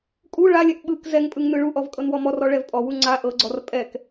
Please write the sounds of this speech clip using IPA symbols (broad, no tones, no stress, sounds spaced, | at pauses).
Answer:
kʼ u ɭ a lʲ ɛ ʔ ɓ ɯ k z ɛ ŋ pʼ ɯ ŋ n ɯ ɭ u ʔ ɔ v kʼ ɤ n w ɔ m ɔ r ɔ ɭ ɛ v pʼ ɔ w u ŋ͡ǀ a ʔ ɤ ɡ͡ǀ ɔ r pʼ ɛ k